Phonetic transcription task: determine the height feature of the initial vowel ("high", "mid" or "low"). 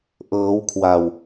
mid